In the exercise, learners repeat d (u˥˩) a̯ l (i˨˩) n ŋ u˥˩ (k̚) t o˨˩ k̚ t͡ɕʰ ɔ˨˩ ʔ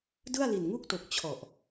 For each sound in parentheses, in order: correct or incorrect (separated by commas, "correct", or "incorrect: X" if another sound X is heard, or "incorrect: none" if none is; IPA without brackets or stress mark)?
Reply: incorrect: ɯ˥˩, correct, correct